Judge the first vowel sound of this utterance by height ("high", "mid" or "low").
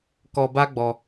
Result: mid